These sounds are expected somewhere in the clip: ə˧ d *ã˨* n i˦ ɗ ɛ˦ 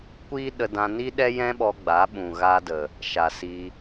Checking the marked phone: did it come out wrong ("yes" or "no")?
yes